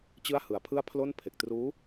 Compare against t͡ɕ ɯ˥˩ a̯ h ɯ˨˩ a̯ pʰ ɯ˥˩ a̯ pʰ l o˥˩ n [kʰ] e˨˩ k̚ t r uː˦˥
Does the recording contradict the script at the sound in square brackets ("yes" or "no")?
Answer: yes